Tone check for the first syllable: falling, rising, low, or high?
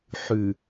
low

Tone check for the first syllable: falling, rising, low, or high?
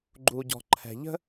low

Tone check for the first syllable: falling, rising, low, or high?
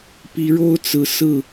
rising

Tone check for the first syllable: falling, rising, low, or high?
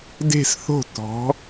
falling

